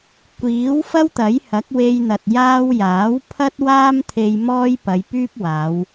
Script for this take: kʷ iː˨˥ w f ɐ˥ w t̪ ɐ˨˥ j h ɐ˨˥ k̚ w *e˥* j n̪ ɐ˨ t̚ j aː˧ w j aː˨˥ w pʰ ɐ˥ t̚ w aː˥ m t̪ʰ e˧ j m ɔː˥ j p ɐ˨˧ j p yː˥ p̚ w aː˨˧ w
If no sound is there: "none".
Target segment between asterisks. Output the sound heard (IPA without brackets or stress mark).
e˧